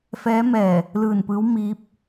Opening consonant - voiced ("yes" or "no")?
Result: no